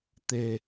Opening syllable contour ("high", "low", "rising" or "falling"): low